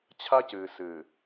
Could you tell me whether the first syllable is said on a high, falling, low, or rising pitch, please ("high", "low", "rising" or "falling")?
high